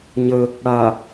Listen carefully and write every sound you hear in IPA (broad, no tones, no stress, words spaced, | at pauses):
ɲə | ɽa